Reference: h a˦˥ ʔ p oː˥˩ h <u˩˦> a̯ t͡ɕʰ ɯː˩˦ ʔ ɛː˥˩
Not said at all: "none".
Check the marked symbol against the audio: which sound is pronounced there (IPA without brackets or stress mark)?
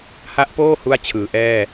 u˥˩